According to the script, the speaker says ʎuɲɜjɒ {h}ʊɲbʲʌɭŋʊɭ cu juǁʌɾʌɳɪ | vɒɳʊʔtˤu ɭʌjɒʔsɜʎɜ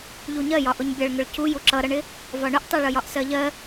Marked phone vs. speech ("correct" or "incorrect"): incorrect